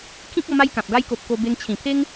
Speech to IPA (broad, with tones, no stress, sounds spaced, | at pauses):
kʰ ĩ˦ k̚ ɔ˧ m a˦ j k ã˨ p̚ ɡ a˦ j k o˨ p̚ k o˧ b e˧ ŋ t͡ɕʰ ĩ˨˩ pʰ e˦ ŋ